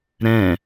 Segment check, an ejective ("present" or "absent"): absent